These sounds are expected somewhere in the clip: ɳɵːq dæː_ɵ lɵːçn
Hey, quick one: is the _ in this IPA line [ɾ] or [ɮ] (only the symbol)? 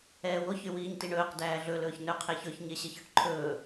ɮ